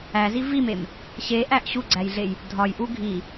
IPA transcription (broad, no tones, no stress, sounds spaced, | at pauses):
æ z i v i m e m | ɕ e ʔ æ ʔ ɕ u ɡ͡ǀ æ j ɮ e j | dʱ ɒ j ʔ u ɡʱ i